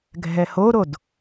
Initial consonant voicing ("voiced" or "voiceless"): voiced